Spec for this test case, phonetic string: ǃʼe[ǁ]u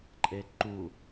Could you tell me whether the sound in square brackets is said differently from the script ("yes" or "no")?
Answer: yes